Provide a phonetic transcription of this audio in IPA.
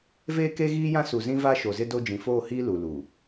veː˦ke˦ɣiː˦jã˦ su˨zĩ˦va˦ ʃo˨zɪ˦do˦ d͡ʒĩ˨foː˦˨hiː˦ lu˨ luː˨

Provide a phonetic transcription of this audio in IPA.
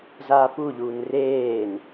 zaːpuʎuːn reːn

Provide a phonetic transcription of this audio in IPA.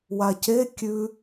wace kʲʉ

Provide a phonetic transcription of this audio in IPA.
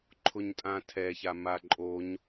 ǃʰʊɲtʼãtʰɛça maǃʼoɲ

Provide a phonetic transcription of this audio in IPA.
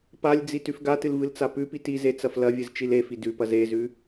palʲd͡zi tʉfɡatɨl vɨlt͡sapʉpit ize t͡sɐflɐvʲɨz t͡ʃilefi dʉpɐz ezʉ

